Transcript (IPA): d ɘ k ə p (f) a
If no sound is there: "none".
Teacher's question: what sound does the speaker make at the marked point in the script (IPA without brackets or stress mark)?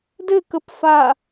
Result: f